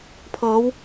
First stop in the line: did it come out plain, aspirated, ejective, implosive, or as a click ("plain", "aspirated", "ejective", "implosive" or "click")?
aspirated